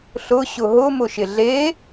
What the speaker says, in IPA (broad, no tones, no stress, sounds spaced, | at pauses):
ɬ ʊ ɕ ʊ ɦ ʊ m ʊ ʃ ɪ ɮ e